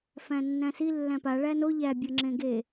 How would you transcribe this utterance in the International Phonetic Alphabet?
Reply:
fæ̃nːæ̃si lːæ̃pa ɭæno ʎæ bʲɤŋ͡ǁẽɡe

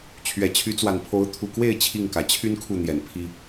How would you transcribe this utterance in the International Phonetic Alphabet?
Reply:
t͡ɕʰɥɛ˨˩t͡ɕʰy˨˦t͡swa˨˩npʰo˨˦ʊ̯ t̪ʰu˨˩kwe˥˨ɪ̯ t͡ɕʰi˥˨ŋkä˨˩ t͡ɕʰy˦n kʰu˥˨n̪jɛ˨˩n pʰi˦

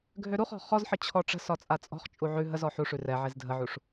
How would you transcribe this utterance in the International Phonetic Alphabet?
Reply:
ɡʱøɾuχɔ̤ χɔzħə t͡ɕʰɔʈ͡ʂə̤sɒ t͡sʼat͡sʼɔ̤χt͡ʃʼu ʕʉ ɦəzɔ ħuʂʉ rɛ ʕezdʱəʕuʂ

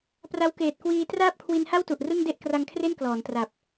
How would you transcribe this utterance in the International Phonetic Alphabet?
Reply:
pra˦˥wkeː˨˩t̚kwiː˧ traː˥˩p̚kʰwi˧nha˥˩w tu˨˩ʔrɯ˥˩ŋ de˥˩ʔkra˧ŋkʰre˥˩n klɔː˩˦ntra˨˩p̚

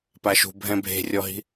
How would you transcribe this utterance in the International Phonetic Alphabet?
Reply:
paʃṳ bʱɛ̃bʱe̤rʲɔɦi̤

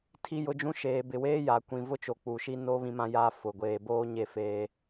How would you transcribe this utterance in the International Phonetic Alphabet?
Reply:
tʰi˦jʊ˦d͡ʒũ˦ ʃeː˨bɪ˨weː˦ja˨ kʷĩ˨vʊ˦t͡ʃo˨ k͡pu˨ʃi˦no˦ βĩ˦mã˦jaː˦ fʊ˨ ɡʷeː˨boː˦ ɲe˦ feː˦

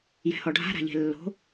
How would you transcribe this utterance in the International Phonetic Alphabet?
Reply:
jɛ̤hɔɖʱa̤ ɾa̤ʎe̤lːo̤

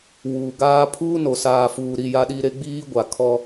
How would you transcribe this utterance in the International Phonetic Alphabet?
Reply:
wuː˨ ɡaː˦ pʰuː˦no˨ saː˨fuː˨ɾi˦˨ ja˦ɗi˦ ɾe˦ɡ͡biː˦ ɡʷa˨ kʰɔ˦

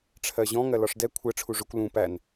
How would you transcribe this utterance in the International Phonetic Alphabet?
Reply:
ʈ͡ʂʰɜʑɔ̃ ŋɜlɒʂdɛ kʷʰɜ ʈ͡ʂʰuʐʊkʷ lũ pæn

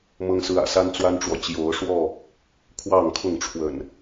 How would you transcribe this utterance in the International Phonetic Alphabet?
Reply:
mɤ˦ŋsɹ̩˦ä̰˨˩ sa˦nt͡swa˦nʈ͡ʂwɔ˨ t͡ɕjo˨˦ʊ̯ʂwɔ˥˨ | kʰwɑ˥˨ŋ kʰʊ˥˨ŋ ʈ͡ʂʰwə̰˨˩n

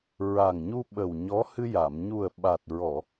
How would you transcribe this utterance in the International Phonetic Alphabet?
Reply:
ɹa˨˩ŋɲu˧ɓə˨˩w ɲɔ˧˥ hɨ˧ja˨˩˨m ɲu˨˩ə̯ɓa˨˩t̚ɹɔ˨˩˨

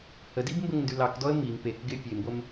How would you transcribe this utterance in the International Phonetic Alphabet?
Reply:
hədib mbəŋndʉlɑkdɔə̯ miŋ pekɡɪ pʲemɡʷəm

